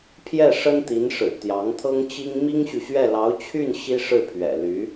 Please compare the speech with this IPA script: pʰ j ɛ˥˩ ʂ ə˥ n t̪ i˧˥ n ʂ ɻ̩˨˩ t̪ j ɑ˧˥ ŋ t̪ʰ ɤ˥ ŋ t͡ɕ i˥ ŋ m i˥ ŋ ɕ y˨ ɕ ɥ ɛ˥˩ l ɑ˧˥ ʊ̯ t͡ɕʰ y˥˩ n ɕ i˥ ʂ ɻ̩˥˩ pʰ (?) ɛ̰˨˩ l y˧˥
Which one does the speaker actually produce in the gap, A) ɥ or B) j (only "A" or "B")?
A